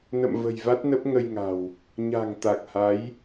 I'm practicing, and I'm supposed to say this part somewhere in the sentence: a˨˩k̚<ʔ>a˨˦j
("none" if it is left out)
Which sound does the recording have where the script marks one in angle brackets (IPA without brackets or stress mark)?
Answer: h